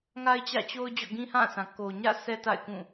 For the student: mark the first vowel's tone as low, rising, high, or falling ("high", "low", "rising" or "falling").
high